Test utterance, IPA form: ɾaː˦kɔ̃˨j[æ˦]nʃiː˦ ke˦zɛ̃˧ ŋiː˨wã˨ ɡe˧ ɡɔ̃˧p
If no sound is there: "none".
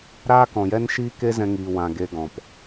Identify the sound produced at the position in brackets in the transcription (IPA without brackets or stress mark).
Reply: ɛ˦